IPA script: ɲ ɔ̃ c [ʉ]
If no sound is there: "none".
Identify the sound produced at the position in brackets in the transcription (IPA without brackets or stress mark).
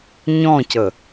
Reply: ə